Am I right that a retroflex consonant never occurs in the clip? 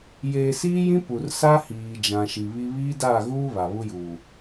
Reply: yes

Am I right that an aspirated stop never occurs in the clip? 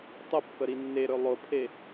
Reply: no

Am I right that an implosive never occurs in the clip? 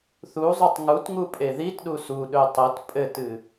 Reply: no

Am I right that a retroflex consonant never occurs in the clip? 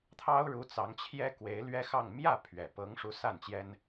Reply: no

